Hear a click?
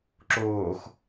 yes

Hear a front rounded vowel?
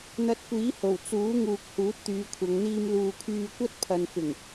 yes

